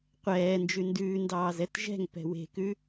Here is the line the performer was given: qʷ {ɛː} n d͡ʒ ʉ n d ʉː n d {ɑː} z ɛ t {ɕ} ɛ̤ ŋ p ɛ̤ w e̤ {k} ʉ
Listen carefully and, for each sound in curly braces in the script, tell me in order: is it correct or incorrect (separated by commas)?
correct, correct, incorrect, correct